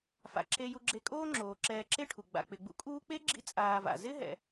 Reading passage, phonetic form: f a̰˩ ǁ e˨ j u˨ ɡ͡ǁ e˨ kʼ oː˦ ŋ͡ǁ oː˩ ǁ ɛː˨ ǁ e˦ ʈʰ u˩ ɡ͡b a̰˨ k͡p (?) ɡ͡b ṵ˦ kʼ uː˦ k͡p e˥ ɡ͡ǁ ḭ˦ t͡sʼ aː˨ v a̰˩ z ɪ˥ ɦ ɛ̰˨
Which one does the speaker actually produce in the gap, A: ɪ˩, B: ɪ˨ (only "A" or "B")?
B